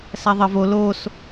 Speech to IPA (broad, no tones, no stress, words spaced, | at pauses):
sæðˤə vo los